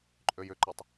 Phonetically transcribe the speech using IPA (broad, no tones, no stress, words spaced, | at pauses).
ǃʼøjʏǃøtˤ